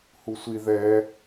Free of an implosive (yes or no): yes